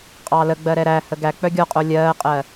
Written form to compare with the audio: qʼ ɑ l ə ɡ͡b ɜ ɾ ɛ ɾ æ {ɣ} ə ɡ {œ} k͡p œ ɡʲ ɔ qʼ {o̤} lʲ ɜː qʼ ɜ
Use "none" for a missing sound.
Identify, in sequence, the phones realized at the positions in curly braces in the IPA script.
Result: h, æ, o

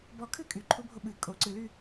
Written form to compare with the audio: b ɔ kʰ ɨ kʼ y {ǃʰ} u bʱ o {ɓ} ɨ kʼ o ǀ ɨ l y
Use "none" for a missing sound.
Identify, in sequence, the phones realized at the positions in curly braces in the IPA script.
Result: ǃʰ, ɓ

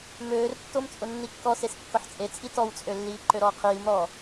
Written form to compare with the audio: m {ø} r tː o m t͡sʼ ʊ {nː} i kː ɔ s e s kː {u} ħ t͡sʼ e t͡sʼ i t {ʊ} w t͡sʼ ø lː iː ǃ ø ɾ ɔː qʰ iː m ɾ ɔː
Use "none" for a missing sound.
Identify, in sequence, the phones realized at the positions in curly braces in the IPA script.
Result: øː, nː, ʊ, ɔ

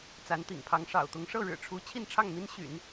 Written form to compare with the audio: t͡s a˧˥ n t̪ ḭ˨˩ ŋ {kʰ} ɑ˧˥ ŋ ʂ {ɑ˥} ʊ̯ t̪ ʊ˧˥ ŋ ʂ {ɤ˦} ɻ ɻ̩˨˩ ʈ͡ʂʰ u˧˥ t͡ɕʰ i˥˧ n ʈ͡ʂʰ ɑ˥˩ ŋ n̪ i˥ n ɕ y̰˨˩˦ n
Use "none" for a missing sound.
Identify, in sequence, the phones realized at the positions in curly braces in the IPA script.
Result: pʰ, ɑ̰˨˩, ɤ˥˩

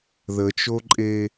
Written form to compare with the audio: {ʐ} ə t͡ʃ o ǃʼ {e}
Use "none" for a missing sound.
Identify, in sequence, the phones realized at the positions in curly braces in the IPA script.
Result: ð, e

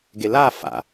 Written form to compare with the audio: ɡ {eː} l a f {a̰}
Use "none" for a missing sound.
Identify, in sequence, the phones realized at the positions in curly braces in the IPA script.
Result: e, a̰

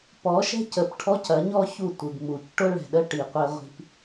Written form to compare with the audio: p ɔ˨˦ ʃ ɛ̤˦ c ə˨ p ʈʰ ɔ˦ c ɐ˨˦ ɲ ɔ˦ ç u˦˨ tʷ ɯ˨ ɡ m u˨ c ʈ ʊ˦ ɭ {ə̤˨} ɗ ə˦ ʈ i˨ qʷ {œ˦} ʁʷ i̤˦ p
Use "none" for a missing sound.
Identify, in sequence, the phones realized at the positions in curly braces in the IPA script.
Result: ɛ̤˨, ɛ˦

